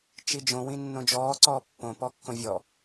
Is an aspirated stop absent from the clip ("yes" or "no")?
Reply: yes